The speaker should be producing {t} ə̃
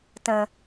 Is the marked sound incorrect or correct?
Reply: correct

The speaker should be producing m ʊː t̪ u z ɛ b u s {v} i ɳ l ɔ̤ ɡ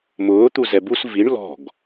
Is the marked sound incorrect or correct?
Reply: correct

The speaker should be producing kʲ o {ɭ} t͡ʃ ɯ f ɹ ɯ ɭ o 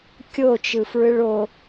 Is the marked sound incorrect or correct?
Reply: incorrect: none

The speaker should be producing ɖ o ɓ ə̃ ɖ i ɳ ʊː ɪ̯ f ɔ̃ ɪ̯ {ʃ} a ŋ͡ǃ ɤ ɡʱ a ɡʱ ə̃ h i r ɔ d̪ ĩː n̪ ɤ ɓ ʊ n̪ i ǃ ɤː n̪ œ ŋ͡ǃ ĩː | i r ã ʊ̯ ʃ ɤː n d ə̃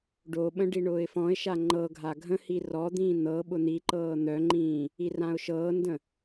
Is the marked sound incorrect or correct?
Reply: correct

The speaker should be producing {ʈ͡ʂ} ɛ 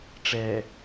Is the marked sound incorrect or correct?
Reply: correct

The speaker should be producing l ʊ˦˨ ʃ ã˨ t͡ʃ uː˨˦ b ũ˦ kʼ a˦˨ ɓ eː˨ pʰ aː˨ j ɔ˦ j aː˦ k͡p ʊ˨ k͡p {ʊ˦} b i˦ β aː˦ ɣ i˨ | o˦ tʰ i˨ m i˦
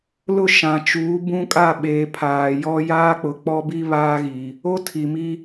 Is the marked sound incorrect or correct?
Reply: incorrect: ɔ˦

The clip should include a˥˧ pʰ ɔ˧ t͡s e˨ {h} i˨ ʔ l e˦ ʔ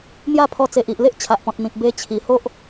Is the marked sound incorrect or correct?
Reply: incorrect: ʔ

